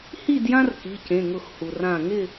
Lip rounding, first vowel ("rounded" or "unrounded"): unrounded